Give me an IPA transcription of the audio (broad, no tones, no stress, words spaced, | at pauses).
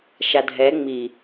ʃadʱɛ ŋ͡mi